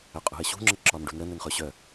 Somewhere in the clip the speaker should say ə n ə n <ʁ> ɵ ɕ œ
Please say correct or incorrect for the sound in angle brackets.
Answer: incorrect